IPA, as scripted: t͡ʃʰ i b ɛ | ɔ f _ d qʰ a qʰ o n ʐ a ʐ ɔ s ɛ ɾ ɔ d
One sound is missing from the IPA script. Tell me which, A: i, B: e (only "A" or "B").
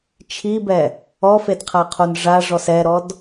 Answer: B